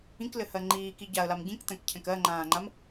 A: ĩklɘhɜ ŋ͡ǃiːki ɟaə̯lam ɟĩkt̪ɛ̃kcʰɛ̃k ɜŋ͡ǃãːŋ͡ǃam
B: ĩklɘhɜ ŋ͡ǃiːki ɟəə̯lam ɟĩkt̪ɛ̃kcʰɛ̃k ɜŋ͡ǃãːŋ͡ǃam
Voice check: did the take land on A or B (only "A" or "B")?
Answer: A